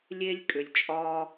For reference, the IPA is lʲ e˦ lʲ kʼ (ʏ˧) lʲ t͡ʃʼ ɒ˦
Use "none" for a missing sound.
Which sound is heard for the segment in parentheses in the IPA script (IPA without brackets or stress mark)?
ʏ˧